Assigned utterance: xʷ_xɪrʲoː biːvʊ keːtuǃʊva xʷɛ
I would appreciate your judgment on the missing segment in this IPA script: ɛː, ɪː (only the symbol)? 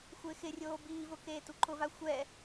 ɪː